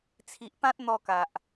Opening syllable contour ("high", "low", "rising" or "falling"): low